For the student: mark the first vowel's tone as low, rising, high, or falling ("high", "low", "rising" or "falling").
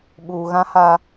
low